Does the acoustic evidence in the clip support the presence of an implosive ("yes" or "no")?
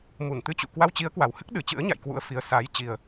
yes